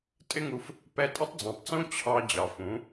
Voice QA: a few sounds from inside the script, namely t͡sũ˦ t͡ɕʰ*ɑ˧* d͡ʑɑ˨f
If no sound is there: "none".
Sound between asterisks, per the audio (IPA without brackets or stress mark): ɑ˧